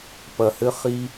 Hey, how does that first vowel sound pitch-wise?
low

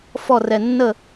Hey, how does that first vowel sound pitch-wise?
falling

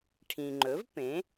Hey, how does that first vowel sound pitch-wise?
low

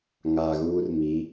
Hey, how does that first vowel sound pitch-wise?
low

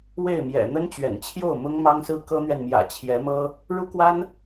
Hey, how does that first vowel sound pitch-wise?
falling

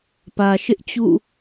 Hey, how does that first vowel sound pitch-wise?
low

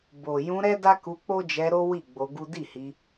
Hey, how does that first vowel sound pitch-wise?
low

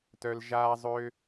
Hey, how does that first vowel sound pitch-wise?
high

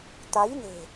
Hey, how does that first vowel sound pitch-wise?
rising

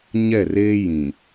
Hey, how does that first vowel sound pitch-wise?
falling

